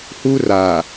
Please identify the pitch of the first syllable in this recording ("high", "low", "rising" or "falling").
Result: high